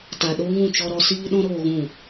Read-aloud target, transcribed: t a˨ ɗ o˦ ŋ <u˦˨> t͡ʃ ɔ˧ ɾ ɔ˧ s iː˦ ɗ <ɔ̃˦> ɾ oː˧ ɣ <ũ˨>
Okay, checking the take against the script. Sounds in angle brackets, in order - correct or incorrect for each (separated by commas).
incorrect, correct, incorrect